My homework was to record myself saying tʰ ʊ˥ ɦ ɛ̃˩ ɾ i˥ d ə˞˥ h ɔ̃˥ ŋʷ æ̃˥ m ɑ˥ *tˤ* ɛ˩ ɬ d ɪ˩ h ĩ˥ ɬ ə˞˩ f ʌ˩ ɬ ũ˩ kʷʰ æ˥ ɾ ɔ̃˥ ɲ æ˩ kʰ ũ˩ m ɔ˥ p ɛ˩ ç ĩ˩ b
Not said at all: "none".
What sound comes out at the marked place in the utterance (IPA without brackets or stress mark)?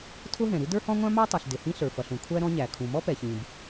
tˤ